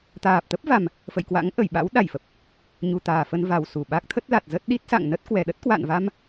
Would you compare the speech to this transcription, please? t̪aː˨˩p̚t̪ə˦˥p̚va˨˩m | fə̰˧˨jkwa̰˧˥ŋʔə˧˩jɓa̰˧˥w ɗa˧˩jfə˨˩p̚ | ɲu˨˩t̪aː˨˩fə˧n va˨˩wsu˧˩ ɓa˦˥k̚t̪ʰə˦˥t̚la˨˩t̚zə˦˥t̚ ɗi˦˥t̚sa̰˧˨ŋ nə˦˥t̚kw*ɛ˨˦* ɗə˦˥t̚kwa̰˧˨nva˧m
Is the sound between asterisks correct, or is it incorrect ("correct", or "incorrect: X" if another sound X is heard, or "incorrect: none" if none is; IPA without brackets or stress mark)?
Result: incorrect: ɛ˨˩